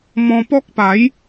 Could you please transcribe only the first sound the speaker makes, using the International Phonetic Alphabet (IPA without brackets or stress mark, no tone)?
m